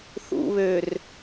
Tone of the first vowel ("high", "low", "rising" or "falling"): low